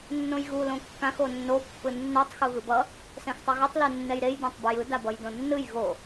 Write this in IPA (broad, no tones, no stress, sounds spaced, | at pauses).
nː õ j ɣ u l õ kː ã x o nː o pː ɯ nː o tˤ x u ɣ ɯ b ʌ | s ɛ̃ x tˤ ʌ ɣ u tˤ l u nː ɛ j ɾ e j d ã tˤ b ɯ j ɯ d a b ʌ j d õ nː ɯ j ɣ o